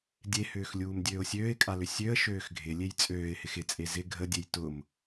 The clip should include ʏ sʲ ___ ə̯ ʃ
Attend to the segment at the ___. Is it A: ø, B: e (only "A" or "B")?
A